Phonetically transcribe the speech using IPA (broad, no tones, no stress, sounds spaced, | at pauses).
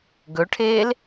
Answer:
ɡ ɵ ʈʰ eː l